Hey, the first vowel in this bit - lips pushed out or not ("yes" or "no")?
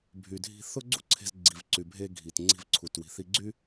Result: yes